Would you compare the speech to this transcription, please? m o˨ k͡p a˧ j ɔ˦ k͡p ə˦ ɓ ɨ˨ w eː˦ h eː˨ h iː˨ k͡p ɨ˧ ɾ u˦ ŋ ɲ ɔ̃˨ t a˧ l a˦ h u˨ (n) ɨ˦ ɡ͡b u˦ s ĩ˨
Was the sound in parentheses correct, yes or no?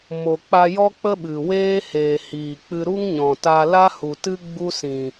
no